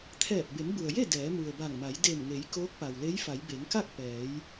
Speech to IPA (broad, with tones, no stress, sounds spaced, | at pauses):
t̪ʰ ɛː˧˩ p̚ b e˩˧ m b u˩ ə̯ j e˥˨ d ɛː˩˧ m u˩ ə̯ b a˧˩ ŋ m a˩˧ j d e˧˩ m ŋ e˩˧ j k oː˧˥ k̚ p a˩ w l e˧˥ j f a˩˧ j b e˩˧ ŋ k a˥˨ k̚ p ɛː˩˧ j